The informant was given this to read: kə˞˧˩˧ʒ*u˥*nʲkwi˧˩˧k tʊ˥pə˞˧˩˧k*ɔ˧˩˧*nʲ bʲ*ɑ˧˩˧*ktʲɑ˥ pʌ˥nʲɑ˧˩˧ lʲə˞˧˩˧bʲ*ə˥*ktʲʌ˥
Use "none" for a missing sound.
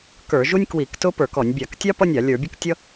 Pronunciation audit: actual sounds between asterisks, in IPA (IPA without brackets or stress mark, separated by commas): u˥, ɔ˧˩˧, ɑ˧˩˧, ə˥